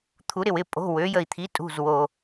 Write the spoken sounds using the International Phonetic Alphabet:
t̪ʰ u˧˥ ɾ ɪ˧ w ɪ˥˧ pʼ o̤˧˥˧ w ø˧˥ j ə˧ i̯ t̪ʰ i˧˥ tʼ ṳ˧˥˧ z w o˧

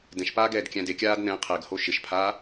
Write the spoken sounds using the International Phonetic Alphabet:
d ɛ̃ ʃ p aː ɡ ɛː d kʲ æ̃ d e kʲ aː d n ɛ̃ qʰ ɛ ɡ h o ʃ ɪ ʃ pʰ aː

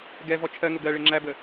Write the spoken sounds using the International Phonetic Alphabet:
ɡ ɛ v ɔ t͡ʃʰ ɜ ŋ ʊ ɡ ɜ ɭ ɪ ŋ͡ǁ æ b ə

